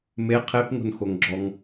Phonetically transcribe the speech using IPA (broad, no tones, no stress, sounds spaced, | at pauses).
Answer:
m e qʰ e p ŋ o̤ n x o ŋ ɡ͡ǁ ɔ ŋ